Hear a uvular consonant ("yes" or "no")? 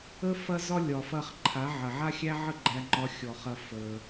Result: yes